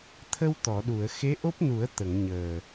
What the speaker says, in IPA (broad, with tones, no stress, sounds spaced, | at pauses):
t̪ʰ ə˧ w t̪ ɔ˨˩˨ ɗ u˨˩˨ ə̯ x e˧˥ ʔ o˦˥ p̚ n u˨˩˦ ə̯ t̪ ə˨˩˨ ŋ ɲ əː˨˩